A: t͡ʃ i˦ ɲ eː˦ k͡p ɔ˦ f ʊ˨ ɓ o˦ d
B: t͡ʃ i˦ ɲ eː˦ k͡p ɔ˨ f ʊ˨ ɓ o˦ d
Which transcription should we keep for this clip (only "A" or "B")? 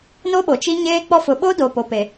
A